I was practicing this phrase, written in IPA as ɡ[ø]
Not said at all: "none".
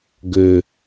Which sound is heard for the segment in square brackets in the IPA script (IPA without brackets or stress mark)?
ø